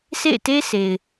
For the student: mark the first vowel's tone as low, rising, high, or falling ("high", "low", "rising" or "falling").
falling